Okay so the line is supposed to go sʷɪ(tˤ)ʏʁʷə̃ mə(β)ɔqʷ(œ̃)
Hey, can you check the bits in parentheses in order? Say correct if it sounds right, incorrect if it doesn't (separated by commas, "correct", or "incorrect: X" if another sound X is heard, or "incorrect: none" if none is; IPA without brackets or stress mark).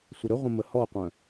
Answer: incorrect: ɾ, incorrect: h, correct